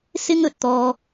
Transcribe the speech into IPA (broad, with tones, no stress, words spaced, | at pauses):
sɪ˥ŋɵ˨˥t̚t̪ɔː˧